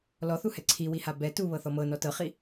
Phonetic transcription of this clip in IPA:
l ɔ θ u h ɛ ǀʰ i w i h a b ɛ t u β ɤ θ ɔ m ɤ n ɔ t ɤ χ i

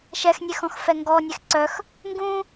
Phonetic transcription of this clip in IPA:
ʃ ɛ x nʲ e x ɔ̃ x f ɛ ŋ ɡ ɔ nʲ e x ǀ œ x | ŋ ɡ ũ

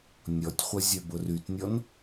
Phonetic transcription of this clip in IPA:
nʲ ɔ tʲ χʷ ə zʲ œ b ʊ r y t nʲ ɔ n

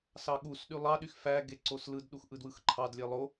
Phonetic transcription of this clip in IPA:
s ɑ ɠ u s ɗ y lˠ ɑ ɗ y x f æ ɡ e ǀ o s l ɯ d ɗ u x ʔ ɯ d w ɯ x ǃʰ ɑ d lʲ e lˠ o

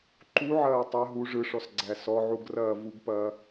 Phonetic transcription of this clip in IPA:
ǃ u ʕ ɐː tˤ ɐ ɦ u ʐ ɯ ʂ ɔ s ɡ͡ǀ æ s ɔ ʕ u ɡ r ɐː v u ɡ p ɐː

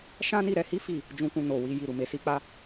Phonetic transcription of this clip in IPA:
ʃ ã˦ n i˦˨ ɾ ɛ˨˦ h i˦ f i˦˨ | d͡ʒ ũ˧ k ũ˧ n o˨ w i˧ j i˧ ɾ u˨ m e˨˦ s i˦ k͡p a˦

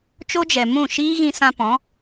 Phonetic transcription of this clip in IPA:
t͡ʃ o˦ d͡ʒ ɛ˨ m ũ˦˨ ʃ iː˦ ɣ ĩ˧ s ã˧ p ɔ̃˨˦

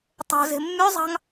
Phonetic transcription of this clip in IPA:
tˤ o̤ z e̤ mː y zˤ ɑ̤ ŋ

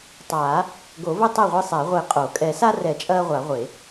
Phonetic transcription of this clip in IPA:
tˤ aː˨˩˦ | ɡ o˨˩˦ v ɘ˦ tˤ ɘ˥˩ ʁʷ i˦ sˤ ɛ˨˩˦ ʁʷ e˨˩˦ qʼ o˨˩˦ kʼ ɛ˨˩˦ s a˦ r ɛ˨˩˦ t͡ʃʼ ɐː˦ ʁʷ a˨˩˦ ʁʷ e˨˩˦

